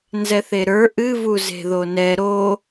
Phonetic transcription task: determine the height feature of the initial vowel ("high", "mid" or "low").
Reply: mid